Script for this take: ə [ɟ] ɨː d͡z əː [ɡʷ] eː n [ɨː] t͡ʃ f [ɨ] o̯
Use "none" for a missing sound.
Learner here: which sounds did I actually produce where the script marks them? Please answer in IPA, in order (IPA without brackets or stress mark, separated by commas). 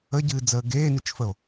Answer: ɟ, ɡ, ɨ, ə